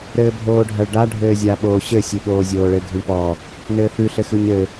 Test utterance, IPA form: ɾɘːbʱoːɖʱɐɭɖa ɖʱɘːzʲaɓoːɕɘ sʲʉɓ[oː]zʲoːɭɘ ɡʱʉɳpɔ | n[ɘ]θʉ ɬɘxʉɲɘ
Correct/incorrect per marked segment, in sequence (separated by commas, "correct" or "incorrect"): correct, incorrect